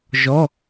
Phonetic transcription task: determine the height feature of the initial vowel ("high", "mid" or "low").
mid